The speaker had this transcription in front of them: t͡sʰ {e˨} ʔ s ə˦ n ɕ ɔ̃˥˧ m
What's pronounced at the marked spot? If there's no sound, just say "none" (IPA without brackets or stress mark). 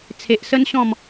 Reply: e˨